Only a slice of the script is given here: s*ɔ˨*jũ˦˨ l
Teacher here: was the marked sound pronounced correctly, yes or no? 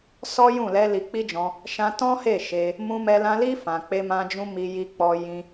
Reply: no